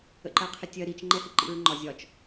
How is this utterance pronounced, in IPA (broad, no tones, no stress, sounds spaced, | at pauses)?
ə̰ ǃ ɜ qʰ ɪ tʲ ɜ ɾ i t͡ʃ ŋ͡ǃ ɛ h ɪ ǃ ḭ ɹ ŋ͡ǃ ɒ zʲ ɒ t͡ʃ